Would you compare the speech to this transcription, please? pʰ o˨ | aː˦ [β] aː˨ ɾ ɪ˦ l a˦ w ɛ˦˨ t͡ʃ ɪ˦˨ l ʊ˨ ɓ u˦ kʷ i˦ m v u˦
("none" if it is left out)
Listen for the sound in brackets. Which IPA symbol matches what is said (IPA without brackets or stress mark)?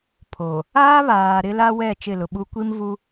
β